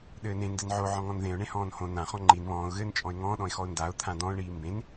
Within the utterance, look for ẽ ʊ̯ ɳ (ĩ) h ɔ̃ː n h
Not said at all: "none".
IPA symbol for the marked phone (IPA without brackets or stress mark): ẽ